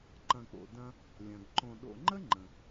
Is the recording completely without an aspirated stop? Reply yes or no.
yes